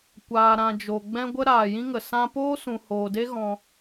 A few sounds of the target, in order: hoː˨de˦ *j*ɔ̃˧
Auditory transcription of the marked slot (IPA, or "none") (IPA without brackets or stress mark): ɣ